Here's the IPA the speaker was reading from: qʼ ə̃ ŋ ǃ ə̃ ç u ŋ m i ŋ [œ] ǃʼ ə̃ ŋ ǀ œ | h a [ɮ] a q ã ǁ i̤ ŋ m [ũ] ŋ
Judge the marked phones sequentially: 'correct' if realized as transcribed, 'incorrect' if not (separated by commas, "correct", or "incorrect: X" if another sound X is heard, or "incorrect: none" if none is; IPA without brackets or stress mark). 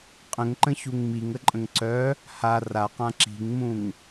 incorrect: ə, incorrect: r, correct